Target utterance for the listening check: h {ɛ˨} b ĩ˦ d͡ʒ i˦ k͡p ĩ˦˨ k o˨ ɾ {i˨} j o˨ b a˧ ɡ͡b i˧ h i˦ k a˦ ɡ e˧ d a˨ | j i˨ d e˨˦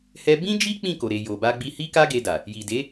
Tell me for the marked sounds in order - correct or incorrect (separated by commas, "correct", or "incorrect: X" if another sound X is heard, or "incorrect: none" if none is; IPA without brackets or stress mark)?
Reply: incorrect: ɛ˦, incorrect: e˨